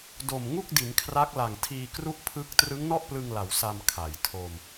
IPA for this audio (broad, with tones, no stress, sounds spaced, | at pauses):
d o˨˩ m ŋ u˥˩ k̚ d i˩˦ n kʰ r a˦˥ k̚ l a˨˩ ŋ tʰ iː˧ k r u˥˩ ʔ pʰ ɯ˥˩ k̚ t r ɯ˦˥ ŋ n ɔ˥˩ ʔ p l ɯ˧ ŋ l a˩˦ w s a˧ m kʰ a˩˦ j tʰ o˧ m